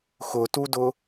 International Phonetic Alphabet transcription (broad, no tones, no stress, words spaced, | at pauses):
xʊtudʊ